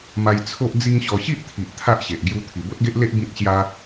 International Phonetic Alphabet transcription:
m a˧ j t͡sʰ o˦ ʔ d͡z i˦ ŋ ɕ ɔ˧ ɕ i˦ ʔ t̪ʰ i˨ ʔ t̪ʰ a˦ ʔ ɕ e˨ ʔ ɡ j u˧ t̪ʰ i˨˩ b o˦ t̚ ɡ e˦ ʔ l e˦ ʔ b ĩ˦ t̚ ɕ j a˦

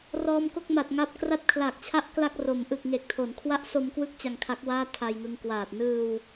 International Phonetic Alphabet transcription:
r ɔː˧ m k o˥˩ k̚ m a˨˩ t̚ ŋ a˦˥ p̚ k r a˥˩ t̚ kʰ l a˨˩ k̚ t͡ɕʰ a˥˩ ʔ k l a˥˩ k̚ r o˩˦ m ʔ ɯ˨˩ k̚ ŋ e˨˩ k̚ tʰ o˩˦ n kʰ w a˦˥ ʔ s o˧ m k w ɯ˦˥ k̚ t͡ɕ a˧ ŋ kʰ a˦˥ k̚ w aː˥˩ tʰ a˧ j ŋ ɯ˧ ŋ k w aː˨˩ t̚ n ɯː˧ w

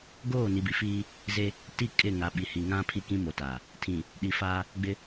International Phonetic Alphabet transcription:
ɡ oː˦˨ n i˨ b i˨ f iː˦ | z e˦ | t i˦˨ kʼ ɪ˦˨ ŋ a˨ ɓ i˨ h i˨ ŋ ã˦ pʰ i˦ k ĩ˦ m o˨ t a˨ | tʰ ĩ˨ | ɗ i˨ f aː˦ | ɡ͡b ɪ˦

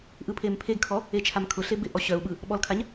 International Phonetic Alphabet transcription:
ʔ ɯ pʰ e m pʰ e ɡ kʰ ɔ | e t͡ʃʰ a m kʰ ʊ ɬ e b ɪ ʔ ɔ ɕ œ u̯ ɓ ɯ | ɓ ɔ l kʰ a ɲ

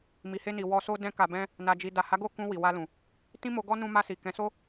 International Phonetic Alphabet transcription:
m i˨ h e˧ n i˨ w ɔ˧ s o˦ d ɛ̃˦ k a˧ b ɛ̃˦ | n a˨ d͡ʒ i˨ d a˨ h a˨˦ ɡ o˦˨ k ũ˧ w i˨ w a˧ l ũ˨ | t ĩ˦ m o˧ ɡ ɔ˦ n ũ˧ m a˧ s i˨ k ɛ̃˨˦ s o˦

